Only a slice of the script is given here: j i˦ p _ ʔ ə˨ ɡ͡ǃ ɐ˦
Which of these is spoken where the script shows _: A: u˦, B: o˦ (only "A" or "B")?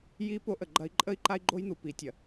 B